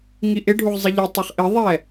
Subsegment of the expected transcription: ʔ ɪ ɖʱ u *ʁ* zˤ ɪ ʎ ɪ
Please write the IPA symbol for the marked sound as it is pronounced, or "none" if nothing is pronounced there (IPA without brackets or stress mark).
ʁ